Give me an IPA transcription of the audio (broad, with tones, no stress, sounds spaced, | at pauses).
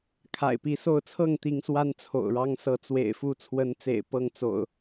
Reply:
kʰ a̰˨˩ ɪ̯ p i˨˦ s o˥˨ ʊ̯ t͡sʰ ɤ˥˨ ŋ t̪ i˨˦ ŋ s w a˦ n t͡sʰ o̰˨˩ ʊ̯ ɻ ɑ˦ ŋ s ɤ˨˦ t͡s w ḛ˨˩ ɪ̯ f u˥˨ t͡sʰ w ə˨˦ n t͡s ḛ˨˩ ɪ̯ p ɤ˥˨ ŋ t͡s o̰˨˩ ʊ̯